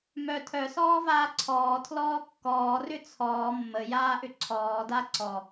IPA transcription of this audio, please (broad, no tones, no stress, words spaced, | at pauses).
mœ tʰœsɔːvaː ǀʰɔːtʰlɔː kːɔːrʏ t͡sʰɔː mːəjaːʔʏ ǀʰɔːda ǀɔ